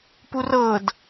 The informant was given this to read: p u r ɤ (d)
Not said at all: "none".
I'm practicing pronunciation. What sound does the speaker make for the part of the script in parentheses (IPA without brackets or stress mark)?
d